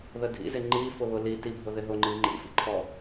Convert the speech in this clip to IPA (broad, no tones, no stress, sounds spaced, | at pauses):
ð ə dʱ ḭ z ɪ ŋ͡ǃ i f ʊ β ʊ l i t i bʱ ʊ ð ɪ ɦ ʊ ŋ͡ǃ i ŋ͡ǃ ḭ f ḭ ǃʰ ɔ